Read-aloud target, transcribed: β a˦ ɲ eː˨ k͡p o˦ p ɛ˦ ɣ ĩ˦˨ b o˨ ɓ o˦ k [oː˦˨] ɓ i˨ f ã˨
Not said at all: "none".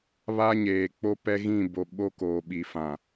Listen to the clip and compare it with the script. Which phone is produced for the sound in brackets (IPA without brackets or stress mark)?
oː˨